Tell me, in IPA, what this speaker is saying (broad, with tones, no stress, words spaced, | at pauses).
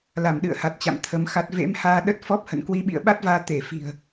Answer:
la˧˩mɗɨ̰˧˨ə̯ha˨˩t̚t͡ɕa̰˧˨m t̪ʰə˨˦mxa˦˥t̚ vḛ˧˥mhaː˧ ɗə˦˥t̚fɔ˦˥p̚hə̰˧˨n kwi˧ɓḭ˧˨ə̯ɓa˦˥t̚vaː˧ t̪e˧˩fi̤˨˩ə̯